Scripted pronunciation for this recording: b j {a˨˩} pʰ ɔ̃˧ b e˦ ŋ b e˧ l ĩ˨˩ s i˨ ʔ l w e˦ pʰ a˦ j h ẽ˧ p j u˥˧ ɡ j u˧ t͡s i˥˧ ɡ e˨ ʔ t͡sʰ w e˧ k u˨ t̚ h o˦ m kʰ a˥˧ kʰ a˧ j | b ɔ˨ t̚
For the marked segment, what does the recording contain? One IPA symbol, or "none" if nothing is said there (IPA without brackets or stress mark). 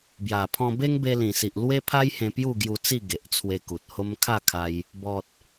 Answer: a˨˩